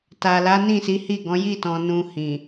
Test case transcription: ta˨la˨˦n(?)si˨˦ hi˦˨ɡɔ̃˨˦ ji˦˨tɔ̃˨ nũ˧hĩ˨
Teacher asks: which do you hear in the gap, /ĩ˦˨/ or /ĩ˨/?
ĩ˦˨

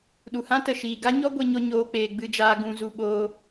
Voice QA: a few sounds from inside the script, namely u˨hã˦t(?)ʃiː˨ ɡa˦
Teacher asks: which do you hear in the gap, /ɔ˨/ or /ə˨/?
ə˨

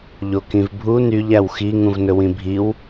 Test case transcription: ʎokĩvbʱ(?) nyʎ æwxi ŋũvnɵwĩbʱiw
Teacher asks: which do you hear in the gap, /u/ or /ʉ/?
u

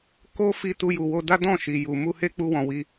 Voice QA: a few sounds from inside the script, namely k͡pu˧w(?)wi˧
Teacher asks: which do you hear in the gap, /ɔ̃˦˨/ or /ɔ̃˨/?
ɔ̃˨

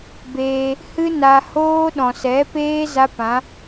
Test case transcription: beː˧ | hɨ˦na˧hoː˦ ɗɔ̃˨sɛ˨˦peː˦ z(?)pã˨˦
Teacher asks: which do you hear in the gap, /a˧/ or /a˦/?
a˦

